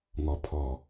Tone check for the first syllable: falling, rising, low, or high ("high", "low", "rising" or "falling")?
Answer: low